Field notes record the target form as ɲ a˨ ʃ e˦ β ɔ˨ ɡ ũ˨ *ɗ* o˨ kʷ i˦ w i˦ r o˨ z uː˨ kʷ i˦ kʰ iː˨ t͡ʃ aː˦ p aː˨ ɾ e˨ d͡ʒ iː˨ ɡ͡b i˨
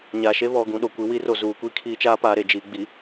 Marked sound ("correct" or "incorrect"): correct